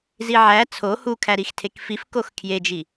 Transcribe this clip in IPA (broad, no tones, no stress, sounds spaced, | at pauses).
z i ʕ æ t͡sʰ o h u kʰ æ ɾ i x tʰ e k f i f k o x kʰ j e d͡ʒ i